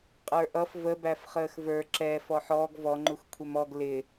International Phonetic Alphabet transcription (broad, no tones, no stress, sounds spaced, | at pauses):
qʼ ə˞ ʔ ʌ f v ə b æ f χ əː x v ə˞ ǁ ɛ f ɔ ħ ɔː ɡ v ɔ ŋ͡ǃ u x kʷʰ ɛ m ɔ ɡ l ɪ